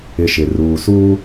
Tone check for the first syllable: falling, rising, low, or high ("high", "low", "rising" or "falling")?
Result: low